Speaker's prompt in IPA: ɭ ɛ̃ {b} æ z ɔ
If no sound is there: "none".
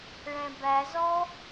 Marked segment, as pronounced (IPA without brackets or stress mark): b